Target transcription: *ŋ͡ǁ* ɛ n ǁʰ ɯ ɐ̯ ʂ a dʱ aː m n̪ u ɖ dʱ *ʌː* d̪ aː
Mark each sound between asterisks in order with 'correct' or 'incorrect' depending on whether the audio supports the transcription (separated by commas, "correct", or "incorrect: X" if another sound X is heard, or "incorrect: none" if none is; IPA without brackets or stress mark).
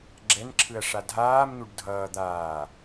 incorrect: ɡ͡ǁ, correct